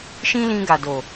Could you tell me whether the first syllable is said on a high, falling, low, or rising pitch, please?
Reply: high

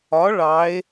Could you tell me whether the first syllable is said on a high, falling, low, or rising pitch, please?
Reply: rising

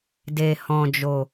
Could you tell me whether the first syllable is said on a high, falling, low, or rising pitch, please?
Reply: low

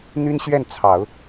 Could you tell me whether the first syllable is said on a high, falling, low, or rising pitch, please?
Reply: high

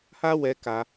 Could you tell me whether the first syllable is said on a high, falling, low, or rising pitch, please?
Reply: high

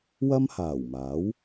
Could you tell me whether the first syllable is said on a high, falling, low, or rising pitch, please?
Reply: high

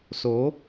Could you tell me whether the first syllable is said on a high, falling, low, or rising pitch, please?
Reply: rising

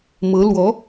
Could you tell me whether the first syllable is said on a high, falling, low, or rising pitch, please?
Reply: rising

